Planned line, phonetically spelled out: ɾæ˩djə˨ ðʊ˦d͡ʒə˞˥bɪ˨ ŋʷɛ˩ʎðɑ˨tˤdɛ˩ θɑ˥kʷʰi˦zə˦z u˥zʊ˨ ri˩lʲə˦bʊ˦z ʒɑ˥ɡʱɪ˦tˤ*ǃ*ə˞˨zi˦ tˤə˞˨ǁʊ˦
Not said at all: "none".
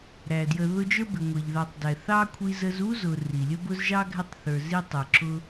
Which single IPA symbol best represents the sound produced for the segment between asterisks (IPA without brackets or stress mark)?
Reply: θ